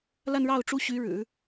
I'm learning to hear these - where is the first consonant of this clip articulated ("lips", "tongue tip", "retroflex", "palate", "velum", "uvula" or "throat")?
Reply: tongue tip